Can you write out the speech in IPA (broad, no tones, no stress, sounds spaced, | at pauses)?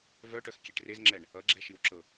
v œ ʈ œ x kʲ e ʈ r e z ŋ͡ǁ ɛ ɳ | ʌ ɡ͡ǁ ɛ ʃ i w ǁ ɤ